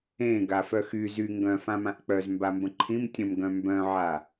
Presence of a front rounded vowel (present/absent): present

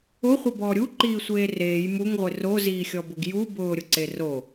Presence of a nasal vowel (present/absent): absent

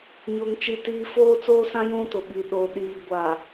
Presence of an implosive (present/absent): present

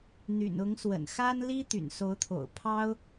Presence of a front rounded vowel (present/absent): present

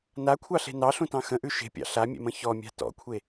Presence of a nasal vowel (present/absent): present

